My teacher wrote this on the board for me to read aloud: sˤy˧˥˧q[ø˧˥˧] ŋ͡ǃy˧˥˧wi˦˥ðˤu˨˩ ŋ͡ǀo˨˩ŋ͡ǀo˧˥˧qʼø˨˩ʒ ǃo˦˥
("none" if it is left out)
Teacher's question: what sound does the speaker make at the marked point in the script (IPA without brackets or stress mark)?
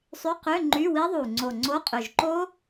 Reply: ø˧˥˧